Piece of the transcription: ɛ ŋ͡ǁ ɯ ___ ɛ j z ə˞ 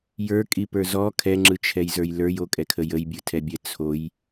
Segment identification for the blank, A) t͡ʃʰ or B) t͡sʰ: A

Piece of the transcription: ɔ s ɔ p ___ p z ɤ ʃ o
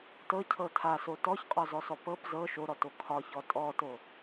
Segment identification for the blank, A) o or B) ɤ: B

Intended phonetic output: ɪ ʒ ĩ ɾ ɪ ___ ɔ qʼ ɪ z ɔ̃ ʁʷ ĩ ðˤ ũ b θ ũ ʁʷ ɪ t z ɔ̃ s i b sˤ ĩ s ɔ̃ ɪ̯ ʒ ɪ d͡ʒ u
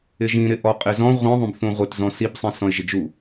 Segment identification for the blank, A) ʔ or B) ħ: A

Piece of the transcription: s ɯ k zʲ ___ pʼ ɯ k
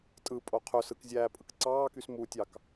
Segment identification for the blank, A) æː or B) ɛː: A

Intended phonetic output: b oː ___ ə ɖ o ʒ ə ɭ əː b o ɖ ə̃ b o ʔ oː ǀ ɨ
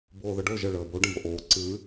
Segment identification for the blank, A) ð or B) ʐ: A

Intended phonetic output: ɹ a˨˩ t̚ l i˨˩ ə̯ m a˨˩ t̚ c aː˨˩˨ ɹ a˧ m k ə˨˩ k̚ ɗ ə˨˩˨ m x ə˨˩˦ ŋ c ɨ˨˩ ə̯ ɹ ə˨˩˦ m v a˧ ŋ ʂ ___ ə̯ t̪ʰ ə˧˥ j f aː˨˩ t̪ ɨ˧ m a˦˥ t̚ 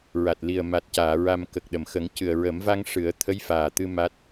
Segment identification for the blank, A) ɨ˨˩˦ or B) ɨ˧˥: A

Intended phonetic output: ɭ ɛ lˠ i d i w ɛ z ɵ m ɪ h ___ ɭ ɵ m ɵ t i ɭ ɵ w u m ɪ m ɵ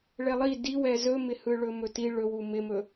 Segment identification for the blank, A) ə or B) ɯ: B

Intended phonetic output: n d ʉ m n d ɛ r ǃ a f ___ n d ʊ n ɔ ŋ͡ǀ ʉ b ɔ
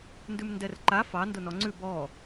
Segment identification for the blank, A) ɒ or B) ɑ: B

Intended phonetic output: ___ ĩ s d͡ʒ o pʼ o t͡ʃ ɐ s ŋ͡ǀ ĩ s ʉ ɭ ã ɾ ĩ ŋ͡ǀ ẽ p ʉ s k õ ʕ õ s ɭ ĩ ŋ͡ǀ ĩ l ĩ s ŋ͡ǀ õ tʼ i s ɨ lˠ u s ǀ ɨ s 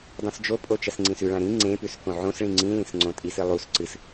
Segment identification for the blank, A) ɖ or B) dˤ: B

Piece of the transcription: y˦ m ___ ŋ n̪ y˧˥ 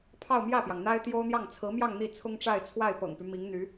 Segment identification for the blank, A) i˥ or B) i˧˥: B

